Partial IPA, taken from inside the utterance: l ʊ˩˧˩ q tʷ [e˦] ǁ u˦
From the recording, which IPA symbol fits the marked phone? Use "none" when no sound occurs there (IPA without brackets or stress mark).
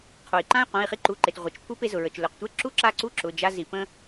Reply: e˦